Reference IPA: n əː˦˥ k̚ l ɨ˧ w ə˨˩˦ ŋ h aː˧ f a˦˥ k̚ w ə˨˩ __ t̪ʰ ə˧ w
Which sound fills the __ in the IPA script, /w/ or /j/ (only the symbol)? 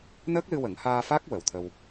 w